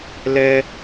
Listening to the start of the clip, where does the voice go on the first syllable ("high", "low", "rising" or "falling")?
high